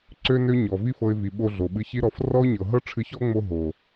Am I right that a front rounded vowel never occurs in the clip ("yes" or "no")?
no